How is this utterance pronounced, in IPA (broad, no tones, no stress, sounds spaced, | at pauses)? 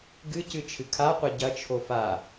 ɡ ɨ c ɨ t͡ʃʰ ɨ kʰ a qʷ ɐ ɟ ɐ t͡ʃʰ o f a